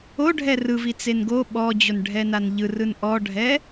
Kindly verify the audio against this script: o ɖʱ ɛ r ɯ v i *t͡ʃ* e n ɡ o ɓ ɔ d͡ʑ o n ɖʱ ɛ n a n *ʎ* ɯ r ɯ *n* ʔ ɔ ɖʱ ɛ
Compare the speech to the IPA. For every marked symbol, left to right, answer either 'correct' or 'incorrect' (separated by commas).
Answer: incorrect, correct, correct